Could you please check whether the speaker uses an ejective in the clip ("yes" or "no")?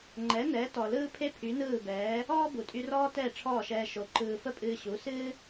yes